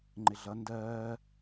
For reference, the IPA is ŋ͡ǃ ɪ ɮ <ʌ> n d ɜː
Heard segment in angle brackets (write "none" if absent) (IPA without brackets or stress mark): ʌ